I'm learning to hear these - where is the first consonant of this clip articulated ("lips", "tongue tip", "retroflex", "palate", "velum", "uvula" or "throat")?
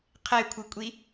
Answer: uvula